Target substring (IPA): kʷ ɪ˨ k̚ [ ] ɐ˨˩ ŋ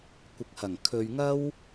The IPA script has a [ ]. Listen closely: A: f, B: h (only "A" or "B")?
B